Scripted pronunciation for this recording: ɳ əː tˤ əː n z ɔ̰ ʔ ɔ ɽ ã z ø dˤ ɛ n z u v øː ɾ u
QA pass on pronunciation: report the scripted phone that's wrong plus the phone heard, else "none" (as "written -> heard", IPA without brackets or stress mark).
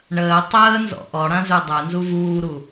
øː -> uː